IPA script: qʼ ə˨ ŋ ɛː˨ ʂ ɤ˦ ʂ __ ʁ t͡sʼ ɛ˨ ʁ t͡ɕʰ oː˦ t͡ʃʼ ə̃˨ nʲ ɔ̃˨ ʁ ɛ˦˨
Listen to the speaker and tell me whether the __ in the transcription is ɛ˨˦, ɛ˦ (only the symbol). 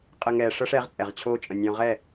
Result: ɛ˨˦